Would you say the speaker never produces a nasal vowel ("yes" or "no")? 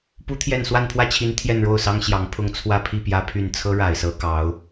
yes